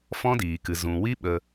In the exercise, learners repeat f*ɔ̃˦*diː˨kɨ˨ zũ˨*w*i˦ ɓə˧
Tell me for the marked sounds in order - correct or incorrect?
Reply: correct, correct

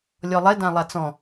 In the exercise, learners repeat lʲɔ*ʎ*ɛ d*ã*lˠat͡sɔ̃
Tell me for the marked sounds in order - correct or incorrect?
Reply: incorrect, correct

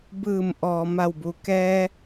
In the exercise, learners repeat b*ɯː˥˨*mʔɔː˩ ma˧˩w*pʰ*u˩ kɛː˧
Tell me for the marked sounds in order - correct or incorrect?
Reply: incorrect, incorrect

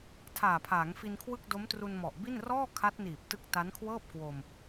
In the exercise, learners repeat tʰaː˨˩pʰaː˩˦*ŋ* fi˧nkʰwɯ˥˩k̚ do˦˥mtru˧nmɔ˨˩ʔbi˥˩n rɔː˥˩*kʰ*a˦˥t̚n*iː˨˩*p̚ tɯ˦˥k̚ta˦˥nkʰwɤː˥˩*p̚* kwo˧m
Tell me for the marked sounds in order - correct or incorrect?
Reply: correct, correct, correct, correct

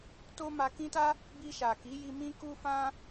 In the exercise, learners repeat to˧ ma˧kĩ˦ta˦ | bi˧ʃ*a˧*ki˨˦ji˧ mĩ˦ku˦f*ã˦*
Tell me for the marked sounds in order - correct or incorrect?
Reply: incorrect, correct

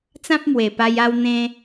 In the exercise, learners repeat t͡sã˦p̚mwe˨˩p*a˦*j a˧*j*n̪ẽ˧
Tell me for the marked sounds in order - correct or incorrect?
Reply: incorrect, incorrect

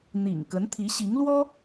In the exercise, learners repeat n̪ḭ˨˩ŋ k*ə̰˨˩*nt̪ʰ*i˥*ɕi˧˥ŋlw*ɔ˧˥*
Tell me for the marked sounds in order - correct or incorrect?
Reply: incorrect, incorrect, incorrect

